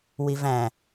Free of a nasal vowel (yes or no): no